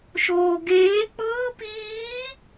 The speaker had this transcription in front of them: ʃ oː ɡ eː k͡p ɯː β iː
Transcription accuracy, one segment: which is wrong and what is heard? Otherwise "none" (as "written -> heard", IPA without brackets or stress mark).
β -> p